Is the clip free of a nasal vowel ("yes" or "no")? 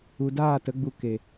yes